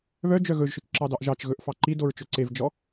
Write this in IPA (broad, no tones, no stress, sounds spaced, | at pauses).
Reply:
β œ d͡ʒ œ ɣ ɵ ʒ ʃ ɵ t͡ʃ ǁ ɑ d ɑ ʔ ʒ ɑ t͡ʃ ɣ ɵ ʔ f ɑ ǃ i d o ɹ t͡ʃ ɵ ǀ e v d͡ʒ ɔ